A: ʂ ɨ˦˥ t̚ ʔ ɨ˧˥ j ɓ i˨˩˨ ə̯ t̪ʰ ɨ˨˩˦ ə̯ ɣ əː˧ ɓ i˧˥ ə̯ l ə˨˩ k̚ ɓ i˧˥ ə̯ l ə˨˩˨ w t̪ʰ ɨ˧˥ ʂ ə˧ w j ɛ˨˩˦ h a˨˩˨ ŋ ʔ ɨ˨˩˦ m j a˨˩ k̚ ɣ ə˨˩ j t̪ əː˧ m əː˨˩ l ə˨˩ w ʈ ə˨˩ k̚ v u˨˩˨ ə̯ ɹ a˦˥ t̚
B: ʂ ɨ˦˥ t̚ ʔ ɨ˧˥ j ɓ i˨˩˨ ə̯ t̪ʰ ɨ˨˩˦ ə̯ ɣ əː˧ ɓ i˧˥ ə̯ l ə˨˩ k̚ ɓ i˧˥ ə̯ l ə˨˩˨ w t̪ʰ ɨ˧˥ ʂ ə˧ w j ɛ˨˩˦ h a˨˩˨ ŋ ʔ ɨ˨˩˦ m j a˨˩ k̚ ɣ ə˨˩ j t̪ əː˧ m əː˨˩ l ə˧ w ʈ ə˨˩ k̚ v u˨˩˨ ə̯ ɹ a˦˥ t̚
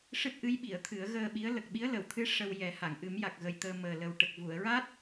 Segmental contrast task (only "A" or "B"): A